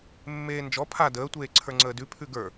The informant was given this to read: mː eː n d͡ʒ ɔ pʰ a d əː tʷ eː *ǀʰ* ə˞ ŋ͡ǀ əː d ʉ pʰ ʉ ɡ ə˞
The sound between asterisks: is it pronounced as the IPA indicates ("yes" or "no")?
yes